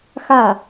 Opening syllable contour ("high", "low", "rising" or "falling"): falling